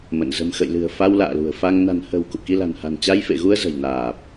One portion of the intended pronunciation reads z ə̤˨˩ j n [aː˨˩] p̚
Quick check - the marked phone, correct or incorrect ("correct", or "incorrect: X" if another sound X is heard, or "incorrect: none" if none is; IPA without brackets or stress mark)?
correct